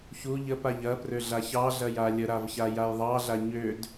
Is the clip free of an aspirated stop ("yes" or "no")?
yes